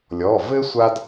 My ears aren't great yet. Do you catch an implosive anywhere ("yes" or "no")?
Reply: no